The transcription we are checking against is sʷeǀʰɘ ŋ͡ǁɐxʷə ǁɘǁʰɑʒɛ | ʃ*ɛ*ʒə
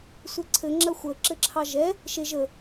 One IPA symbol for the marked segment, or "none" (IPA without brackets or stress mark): e